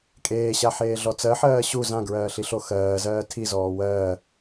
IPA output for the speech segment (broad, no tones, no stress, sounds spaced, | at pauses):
kʼ eː ɕ a ħ eː ɮ ɔ t͡s ɜ ħ ɜː ɕ u z ã ɡ ɹ ɜː ɬ i ɬ o x ɜː z ɜː tʰ i z ɔː w ɜː